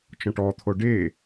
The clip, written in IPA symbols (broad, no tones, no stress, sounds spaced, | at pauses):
t͡ʃ ɔ̃ ʈ ɔ t̪ʰ o ɖ e